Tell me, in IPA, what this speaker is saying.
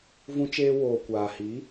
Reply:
v ũ˧ t͡ʃ eː˧ w oː˨ kʷ aː˨ h i˨˦

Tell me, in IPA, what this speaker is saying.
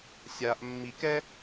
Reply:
sʲ a ʔ mː i k ɛ

